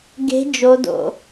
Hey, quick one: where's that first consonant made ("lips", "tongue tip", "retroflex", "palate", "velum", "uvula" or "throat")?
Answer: velum